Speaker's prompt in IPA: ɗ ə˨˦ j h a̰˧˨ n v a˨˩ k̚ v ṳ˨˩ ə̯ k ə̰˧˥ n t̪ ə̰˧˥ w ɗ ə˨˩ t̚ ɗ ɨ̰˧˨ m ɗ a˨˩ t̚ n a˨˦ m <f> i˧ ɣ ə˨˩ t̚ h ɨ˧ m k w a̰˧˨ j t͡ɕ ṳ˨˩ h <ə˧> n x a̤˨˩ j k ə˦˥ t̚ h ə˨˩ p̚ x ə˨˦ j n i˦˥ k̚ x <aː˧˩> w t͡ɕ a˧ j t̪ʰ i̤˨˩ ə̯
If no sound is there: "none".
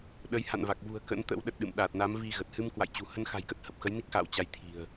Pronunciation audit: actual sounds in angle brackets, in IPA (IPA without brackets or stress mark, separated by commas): v, ə˧, a̰ː˧˨